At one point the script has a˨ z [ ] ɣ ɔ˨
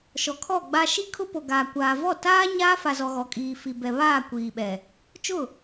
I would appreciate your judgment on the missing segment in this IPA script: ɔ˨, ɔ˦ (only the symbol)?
ɔ˨